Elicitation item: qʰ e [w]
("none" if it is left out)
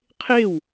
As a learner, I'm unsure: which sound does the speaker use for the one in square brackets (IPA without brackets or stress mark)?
w